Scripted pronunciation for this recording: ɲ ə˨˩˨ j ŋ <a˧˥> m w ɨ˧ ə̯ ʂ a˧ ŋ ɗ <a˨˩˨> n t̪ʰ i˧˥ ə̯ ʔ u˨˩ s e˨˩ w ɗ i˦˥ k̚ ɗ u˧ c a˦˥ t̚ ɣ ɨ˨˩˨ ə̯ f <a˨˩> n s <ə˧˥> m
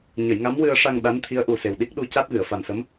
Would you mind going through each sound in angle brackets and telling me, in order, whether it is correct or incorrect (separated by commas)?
correct, incorrect, correct, correct